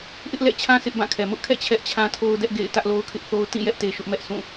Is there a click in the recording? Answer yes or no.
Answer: no